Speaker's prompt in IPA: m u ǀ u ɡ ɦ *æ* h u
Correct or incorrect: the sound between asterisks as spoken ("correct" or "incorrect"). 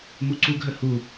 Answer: incorrect